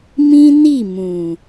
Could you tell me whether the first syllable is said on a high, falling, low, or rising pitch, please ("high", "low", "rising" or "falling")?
high